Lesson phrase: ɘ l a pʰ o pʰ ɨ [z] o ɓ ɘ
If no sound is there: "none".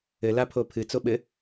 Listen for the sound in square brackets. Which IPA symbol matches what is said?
t͡s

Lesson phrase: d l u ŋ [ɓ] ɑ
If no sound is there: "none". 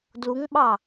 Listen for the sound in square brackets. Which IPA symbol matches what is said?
ɓ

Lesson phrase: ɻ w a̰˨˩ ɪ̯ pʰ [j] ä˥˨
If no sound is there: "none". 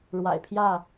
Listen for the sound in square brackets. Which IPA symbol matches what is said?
j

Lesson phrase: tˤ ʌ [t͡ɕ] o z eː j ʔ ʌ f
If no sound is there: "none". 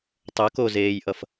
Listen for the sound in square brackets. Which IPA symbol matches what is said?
k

